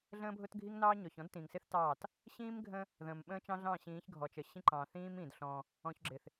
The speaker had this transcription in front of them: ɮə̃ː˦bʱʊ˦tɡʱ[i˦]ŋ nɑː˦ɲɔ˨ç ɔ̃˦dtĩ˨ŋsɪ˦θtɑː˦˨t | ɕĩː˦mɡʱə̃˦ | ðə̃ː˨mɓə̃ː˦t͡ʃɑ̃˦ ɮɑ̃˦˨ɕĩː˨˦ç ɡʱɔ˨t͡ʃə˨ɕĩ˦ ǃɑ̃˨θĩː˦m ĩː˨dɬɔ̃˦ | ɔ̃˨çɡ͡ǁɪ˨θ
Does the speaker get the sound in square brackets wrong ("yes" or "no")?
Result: no